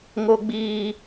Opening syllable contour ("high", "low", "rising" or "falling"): high